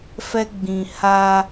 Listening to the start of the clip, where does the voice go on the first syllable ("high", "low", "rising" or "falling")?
high